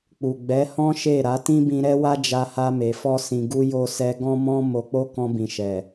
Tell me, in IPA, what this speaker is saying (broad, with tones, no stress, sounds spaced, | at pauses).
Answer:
k͡p u˨ ɡ͡b ɛ˨˦ h ɔ̃˦ ʃ e˦˨ ɾ a˨˦ t ĩ˦ b ĩ˧ ɾ ɛ˦ w a˦ d͡ʒ a˧ h a˧ m e˨ f ɔ˧ s ĩ˨ ɡ u˧ j o˧ s ɛ˧ ɡ ɔ̃˦ m ɔ̃˦ m o˧ k͡p o˦ k ɔ̃˧ b ĩ˨ ʃ ɛ˨